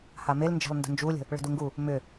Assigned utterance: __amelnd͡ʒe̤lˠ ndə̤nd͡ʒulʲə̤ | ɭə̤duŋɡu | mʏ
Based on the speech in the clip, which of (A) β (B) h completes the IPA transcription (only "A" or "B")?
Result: B